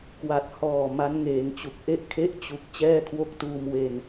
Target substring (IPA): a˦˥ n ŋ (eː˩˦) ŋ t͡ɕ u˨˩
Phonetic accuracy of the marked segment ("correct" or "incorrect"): correct